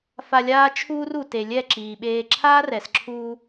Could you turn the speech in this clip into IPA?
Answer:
f a˧ lʲ aː˦ t͡ʃʰ uː˦ r u˨ t e˨ lʲ ɛ˦˨ ǁ iː˨ ɓ eː˧ ǁʰ aː˦ r ɛ˨ s ǁʰ uː˧

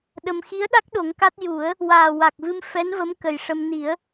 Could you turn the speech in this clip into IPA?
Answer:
ɗ ə˧ m x i˧˥ ə̯ ɗ a˦˥ k̚ ɗ o˨˩˦ ŋ k a˦˥ t̚ j u˨˩˦ ə̯ | w aː˨˩ w a˨˩ k̚ v ɨ˧ m f ɛ˧˥ n v ə˧˥ m k ə˨˩ j ʂ ə˧ m n i˨˩˦ ə̯

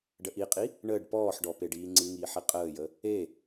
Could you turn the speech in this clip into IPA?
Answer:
ɖ ə ʔ i qʼ i | ɳ əː ɖ p ɔː ħ ɖ ɔ p e ɖ iː ŋ͡ǀ ɨ ŋ iː ħ i qʼ əː j ə | e

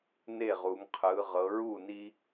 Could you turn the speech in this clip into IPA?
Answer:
n e˥˩ ʁ u˩˧ ŋ qʰ ɯ˩˧ ʁ ɤ˩˧ ɹ u˥˩ n i˦

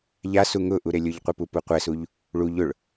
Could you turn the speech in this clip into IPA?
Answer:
ʎ a s u ŋ ʊ ʔ u ɾ e lʲ ʊ ʎ qʷ i p u p u qʷ ɛ s u ʎ | ɭ u ʎ ʊ ɭ

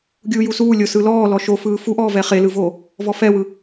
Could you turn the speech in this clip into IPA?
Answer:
ɡʲ uː j u s uː lʲ o s ɯ l ɔː l ɔ ʃ o f ɯː f u ʔ ɔː v ɛ χ e l ɯ v oː | v ɔ f ɛ w ɯ

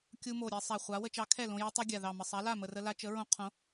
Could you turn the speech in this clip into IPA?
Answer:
kʲ u˧ m o˨˩ ɾʲ ɛ˧ sˤ a˨˩ χʷ a˨˥ w ə˧ t͡ʃ ɑ˨˥ kʰ ɛ˥˩ l õ˧ j ɵ˧ tˤ ɵ˧ ɡʲ a˨˩ ð ɑ˨˩ m ə˨˩ sˤ a˨˥ l a˥˩ m ə˨˩ r ə˧ l a˧ t͡ʃ ə˨˥ ɹ õ˧ qʰ õ˨˥

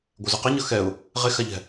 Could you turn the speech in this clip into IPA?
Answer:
ɡʷ ɛ z y q a ɲ ʌ x ɛ ʊ̯ | ʁ e x a ʎ ɛ̤

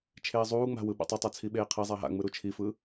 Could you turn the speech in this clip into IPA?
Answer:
t͡ʃʰ eː zˤ uː ŋ͡m a̤ w ɯ ɓ a̰ tˤ o tˤ a t͡sʰ i ɓ eː qʰ i zˤ a ɦ a̰ ŋ͡m ɯ ɾ u t͡ʃʰ i f ɯ

